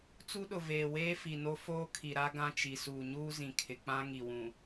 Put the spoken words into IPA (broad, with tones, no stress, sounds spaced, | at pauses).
t͡s u˦ ɗ ʊ˨ v eː˨ w eː˦ f i˨ n o˦ f oː˦ kʰ i˨ ɾ a˦ ɡ ã˦ t͡ʃ i˨ s uː˨ ɲ uː˦ z ĩ˨ kʰ ɪ˨ k͡p ã˦ ŋ i˨ w ũ˨